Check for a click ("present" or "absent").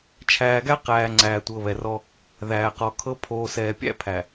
present